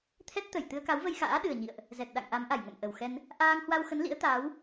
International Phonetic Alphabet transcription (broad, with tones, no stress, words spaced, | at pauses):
t̪ʰɛ˦˥t̚t̪ə˧˩j t̪ɨ˧ə̯ka˨˦wvə˧jxa̰ː˧˥ ɗɨ˨˩ə̯ɲḭ˧˨ə̯ʔ | zɛ˨˩t̚ɗa̰˧˨ŋ ʔa˨˦mʔa˧˩jŋə̰˧˨m ʔə˨˩wxɛ˧n | ʔaː˧ŋhwa˧wxə˨˦n lḭ˧˥ə̯t̪aː˨˦w